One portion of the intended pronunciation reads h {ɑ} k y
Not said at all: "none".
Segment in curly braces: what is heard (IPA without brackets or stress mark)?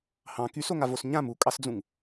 ɑ̃